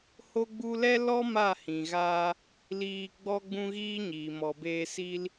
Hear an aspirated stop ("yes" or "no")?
no